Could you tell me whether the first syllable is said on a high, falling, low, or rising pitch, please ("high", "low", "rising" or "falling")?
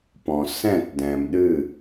low